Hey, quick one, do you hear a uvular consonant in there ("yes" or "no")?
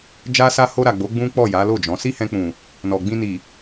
no